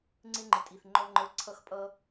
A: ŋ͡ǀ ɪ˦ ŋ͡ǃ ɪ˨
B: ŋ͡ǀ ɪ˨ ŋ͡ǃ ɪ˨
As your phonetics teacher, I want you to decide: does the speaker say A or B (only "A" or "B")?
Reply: A